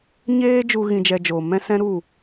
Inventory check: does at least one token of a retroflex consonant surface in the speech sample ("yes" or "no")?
no